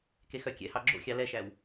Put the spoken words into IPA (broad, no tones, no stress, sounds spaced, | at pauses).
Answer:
k e x œ kʲ ɛ̰ h ɑ ɡ͡ǁ o̰ xʲ ɑ l ɛ ʃ æ w